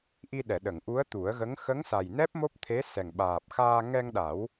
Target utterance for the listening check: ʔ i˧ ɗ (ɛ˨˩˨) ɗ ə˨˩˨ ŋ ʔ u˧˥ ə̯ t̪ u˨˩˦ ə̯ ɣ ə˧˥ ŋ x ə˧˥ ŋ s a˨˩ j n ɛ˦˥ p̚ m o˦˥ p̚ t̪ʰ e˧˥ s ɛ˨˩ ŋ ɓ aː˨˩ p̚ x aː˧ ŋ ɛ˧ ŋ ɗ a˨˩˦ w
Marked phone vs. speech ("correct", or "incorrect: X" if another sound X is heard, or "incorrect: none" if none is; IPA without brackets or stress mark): correct